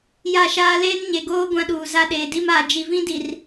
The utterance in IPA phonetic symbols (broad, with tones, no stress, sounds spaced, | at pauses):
j a˦˨ ʃ aː˦ l eː˦ n ɲ e˨ ɡ oː˦ ɡʷ ã˦ ɗ uː˨ z a˦ ɗ eː˨ d i˦ m aː˨ d͡ʒ i˨ v ĩ˦ d i˨ r